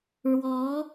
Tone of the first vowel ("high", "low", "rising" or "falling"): rising